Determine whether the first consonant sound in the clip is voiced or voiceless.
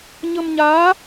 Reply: voiced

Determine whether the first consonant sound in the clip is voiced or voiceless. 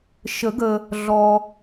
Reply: voiceless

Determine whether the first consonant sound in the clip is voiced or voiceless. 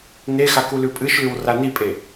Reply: voiced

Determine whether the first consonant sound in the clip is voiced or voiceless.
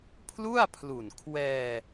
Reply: voiceless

